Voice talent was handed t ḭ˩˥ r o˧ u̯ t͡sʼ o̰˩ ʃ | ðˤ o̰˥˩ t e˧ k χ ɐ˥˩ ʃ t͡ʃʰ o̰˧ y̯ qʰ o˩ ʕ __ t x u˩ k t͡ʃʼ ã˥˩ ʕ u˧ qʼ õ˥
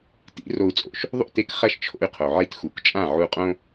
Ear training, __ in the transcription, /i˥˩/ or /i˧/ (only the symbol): i˧